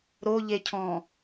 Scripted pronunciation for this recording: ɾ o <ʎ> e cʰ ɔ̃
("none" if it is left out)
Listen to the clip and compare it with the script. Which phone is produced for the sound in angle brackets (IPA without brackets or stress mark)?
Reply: ʎ